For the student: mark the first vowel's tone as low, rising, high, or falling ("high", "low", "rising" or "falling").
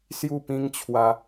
falling